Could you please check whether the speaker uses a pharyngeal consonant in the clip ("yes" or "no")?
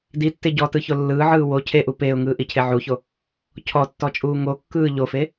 yes